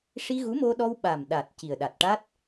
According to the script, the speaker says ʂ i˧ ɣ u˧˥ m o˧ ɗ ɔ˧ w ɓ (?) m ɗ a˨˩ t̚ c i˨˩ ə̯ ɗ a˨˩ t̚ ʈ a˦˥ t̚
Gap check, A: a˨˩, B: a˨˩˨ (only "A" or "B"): A